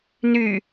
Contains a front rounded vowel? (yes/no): yes